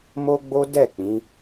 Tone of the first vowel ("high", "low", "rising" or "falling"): high